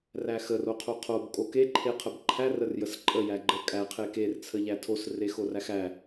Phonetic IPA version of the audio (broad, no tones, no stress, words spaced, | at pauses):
ræxər oqʰoqʰob kʼoke ǃʰeqʰəbǃʰær ərjəsǃʼə jæɡ͡ǃə kʼæ qʰeker t͡sʰəʎætʰos rexoræxæ